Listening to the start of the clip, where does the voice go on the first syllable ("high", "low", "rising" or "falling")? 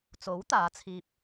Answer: rising